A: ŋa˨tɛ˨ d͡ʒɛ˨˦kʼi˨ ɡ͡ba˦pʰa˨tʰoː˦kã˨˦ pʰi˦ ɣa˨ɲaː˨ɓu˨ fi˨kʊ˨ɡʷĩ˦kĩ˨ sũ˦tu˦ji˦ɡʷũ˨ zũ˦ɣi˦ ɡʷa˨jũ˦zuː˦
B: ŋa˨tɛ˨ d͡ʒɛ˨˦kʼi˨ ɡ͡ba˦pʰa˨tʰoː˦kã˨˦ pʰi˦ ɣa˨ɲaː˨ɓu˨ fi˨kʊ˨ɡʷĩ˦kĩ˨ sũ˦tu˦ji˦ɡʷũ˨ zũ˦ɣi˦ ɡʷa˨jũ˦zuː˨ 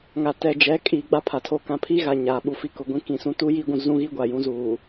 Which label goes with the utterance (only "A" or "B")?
B